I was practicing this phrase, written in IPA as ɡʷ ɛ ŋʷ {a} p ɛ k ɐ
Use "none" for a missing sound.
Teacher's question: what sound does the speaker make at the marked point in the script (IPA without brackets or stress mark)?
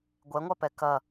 a